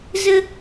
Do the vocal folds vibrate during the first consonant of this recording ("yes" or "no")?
yes